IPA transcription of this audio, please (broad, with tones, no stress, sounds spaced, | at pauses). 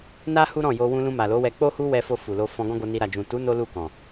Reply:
n a˦ h u˦ ɾ ɔ̃˦˨ j o˧ w ũ˧ l ũ˧ m a˨ l o˨˦ w ɛ˧ k͡p o˦ h u˦ w ɛ˧ f o˧ f u˨ l o˧ f ɔ̃˧ ɡ ɔ̃˦ ɡ o˧ n i˧ ɾ a˨ d͡ʒ ũ˨ t u˨˦ n o˦ l u˦˨ k ɔ̃˨